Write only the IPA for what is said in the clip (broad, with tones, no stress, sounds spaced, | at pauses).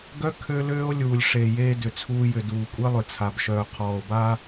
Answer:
ɡ œ˦ kʰ ø˦ l øː˦ o̯ lʲ uː˨ lʲ ʂ e˨ j eː˦ d ʏ˨ t͡sʰ uː˦ j ʏ˨ d uː˨ kʷʼ ɛ˦ lˠ ʏ˨ t͡sʰ a˨ b ʃ œː˨ qʰ ɔː˨ o̯ b a˦